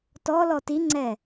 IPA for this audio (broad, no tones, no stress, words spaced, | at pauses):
tɔ lɔtiŋ͡ǀɛ